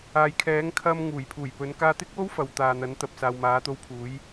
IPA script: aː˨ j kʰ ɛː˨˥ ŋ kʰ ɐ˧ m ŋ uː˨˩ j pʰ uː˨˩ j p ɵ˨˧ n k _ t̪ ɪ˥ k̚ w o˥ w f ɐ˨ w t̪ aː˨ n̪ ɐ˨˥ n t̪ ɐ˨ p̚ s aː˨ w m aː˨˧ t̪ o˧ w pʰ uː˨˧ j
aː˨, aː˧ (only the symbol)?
aː˧